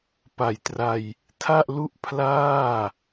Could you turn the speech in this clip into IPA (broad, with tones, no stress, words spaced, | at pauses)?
pa˨˩jtra˧j | tʰa˥˩ʔlu˥˩ʔpʰlaː˥˩